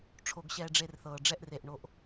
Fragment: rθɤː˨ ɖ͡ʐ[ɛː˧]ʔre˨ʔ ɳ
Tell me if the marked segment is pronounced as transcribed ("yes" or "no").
no